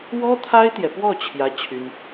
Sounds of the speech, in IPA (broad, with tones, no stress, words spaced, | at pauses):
wɔ˥t̪ʰa˥ɪ̯t̪jɛ˨pwɔ˥˩ t͡ɕʰjä˥t͡ɕʰy˥n